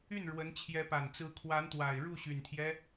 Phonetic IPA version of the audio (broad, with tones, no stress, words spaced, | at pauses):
y˥˩n ɻwə˧˥nt͡ɕʰjɛ˧˥pa˨˩n t͡sɹ̩˧˥kʰwa˧˥nt̪wa˨˩ɪ̯ ɻu˥˩ɕy˨˩nt̪ʰjɛ˦